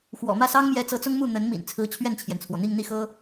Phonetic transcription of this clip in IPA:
x w ɔ̰˨˩ m ä˥˩ s ɑ˥ ŋ m j ɛ˧˥ t͡s ɤ˧˥ t͡s ʊ˥ ŋ m u˥˩ n̪ ə˧˥ n m ḭ˨˩ n t͡sʰ ɹ̩˧˥ t͡ɕʰ ɥ ɛ˥˩ n t͡ɕʰ j ɛ˩ n t͡sʰ w ɔ˩ n̪ i˥˧ ŋ n̪ i˥˩ x ɤ˥

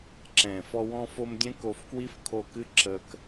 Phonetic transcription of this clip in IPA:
ǁ ɛ̃ː˨ f ɔ˧ w ɔ̃˧ f o˧ m dʲ ɛ̃˦ k o˧ f k w i˦ f kʰ o˧ k ɨ˦ ǁ əː˧ k

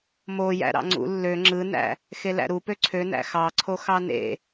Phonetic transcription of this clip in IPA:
m o j æ̰ ɾ ɑ̰ ŋ͡ǀ ṵ lː ø ŋ͡ǁ ɯ n æ̰ | x e l æ̰ ɾ u p ø ǀʰ ø n æ̰ x ɑ ǀʰ o x ɑ n ḛ

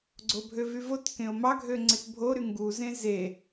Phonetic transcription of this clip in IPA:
ɡ͡ǀ o bʱ ø v y v o t k ẽ o̯ m ɑ ɡʱ ø ŋ͡ǀ e t bʱ o ɾ y ŋ ɡ u z ẽ z e

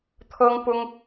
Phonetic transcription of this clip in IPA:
t̪ʰ ɤ˥ ŋ p ʊ˥ ŋ

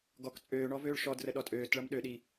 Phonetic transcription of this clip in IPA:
ɡ ɔ k t͡sʼ øː ɳ ɔ v øː ɭ ʃ ɔ d r ə ɗ ɔ tʼ øː t ɭ ʌ m ɗ ø ɗ i

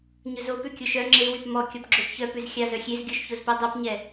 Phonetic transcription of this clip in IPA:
ɲ ɵ z o p ʉ kʲ o ʃ œ ŋ͡ǁ e w y p m ɔ kʲ ɔ p ɡ͡ǁ o ʃ ç œ p ʉ z xʲ ɑ z œ xʲ e z ɡʲ o ʃ ç o z p e dˤ œ p ɲ ɛ

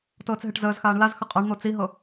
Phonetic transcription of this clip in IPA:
t ɤː t͡s ɦ e ʈ z əː z x aː ɳ l a z x ə qʼ a ɳ n̪ o t͡s i ɦ ɤ

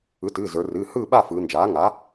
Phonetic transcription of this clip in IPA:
ɯ˩˥ t ɨː˩˧˩ z ə˞˩˧ r ɨː˩˧˩ h ɯː˥˨ ɓ a˥˨ f ɯː˩˧ n d͡ʒ aː˩˥ ŋ a˩˥

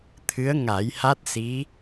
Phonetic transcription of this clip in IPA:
t̪ʰ ɨ˧˥ ə̯ ŋ a˨˩˦ j h a˦˥ t̚ s i˧˥

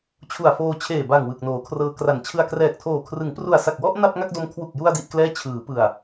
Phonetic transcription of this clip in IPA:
t͡ɕʰ u˨˩ a̯ f oː˧ t͡ɕʰ eː˨˩ b a˨˩ ŋ w ɯ˨˩ k̚ n oː˩˦ kʰ r ɤː˧ k r a˨˩ n t͡ɕʰ ɯ˧ a̯ k r ɛː˨˩ k̚ tʰ oː˨˩ kʰ r ɯ˩˦ ŋ p r u˨˩ a̯ s a˨˩ k̚ w ɔ˥˩ ʔ n a˥˩ p̚ ŋ a˥˩ k̚ d o˦˥ m kʰ w u˨˩ k̚ j u˧ a̯ d i˥˩ ʔ k l ɛː˥˩ t͡ɕʰ ɯː˩˦ p ɯ˨˩ a̯

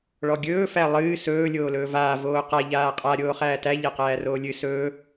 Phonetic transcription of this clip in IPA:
ɭ ɔ ɡʲ ɵː f æ lˠ ɨː s ɵː lʲ oː l ɵː v aː v oː q a ʎ aː qʼ a ɾʲ oː χ æː t æ ʎ æ q æː r oː lʲ ɨ s ɵː

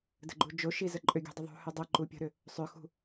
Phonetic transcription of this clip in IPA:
d ə̤ ɡ͡ǃ u d͡ʒ o ʃ i z ə ǃʼ ʏ ɡʲ ṳ dˤ ə ðˤ ṳ h ʏ dˤ ə ǃ u pʲ ə̤ ɾ ʏ | sˤ ʏ x ṳ

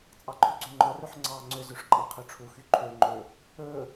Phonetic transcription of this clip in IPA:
t͡sʼ ɑ ǃʰ ʉ ɡ͡ǀ ø ŋ͡ǃ ɔ r ø ħ ŋ͡ǀ ɑː ŋ͡ǀ ø z ʉ ʂ ǃʼ ɑ qʰ ø ʈ͡ʂʰ u x y ǃʰ ø ŋ͡ǃ ɵ | ɵː

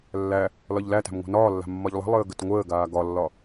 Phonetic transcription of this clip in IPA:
lː æ | l ɒ ʎ l æ t æ̤ m ŋʷ a̤ n ɒː lː a̤ mː ɒ ʎ lˠ ə̤ lˠ əː ɡ ə t ŋʷ əː ɡ aː ɡ ɒ lː ɒ

